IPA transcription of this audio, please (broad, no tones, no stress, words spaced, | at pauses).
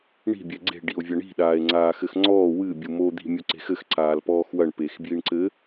ɳi̤ bʲɛɡ͡ǀe̤ ɖio̯vʲɐɳi̤ ɗaːe̯ŋ͡ǀaːxɘxŋ͡ǀɔː wɨ bʲumo d̪i̤ mʲoǀe̤xɘx ǀaːlpɔːxwɐɳ pexbjiɳǀɘ